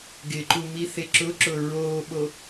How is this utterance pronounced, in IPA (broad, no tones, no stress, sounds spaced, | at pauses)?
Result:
ɡ ɪ ǃ u m i θ e ǁ ʊ ǁ ʊ ɹ oː ɓ o